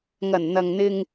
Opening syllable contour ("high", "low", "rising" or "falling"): low